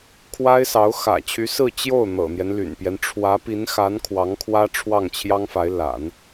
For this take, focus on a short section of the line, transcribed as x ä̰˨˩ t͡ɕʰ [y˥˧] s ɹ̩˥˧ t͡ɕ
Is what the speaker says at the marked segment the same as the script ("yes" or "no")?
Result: no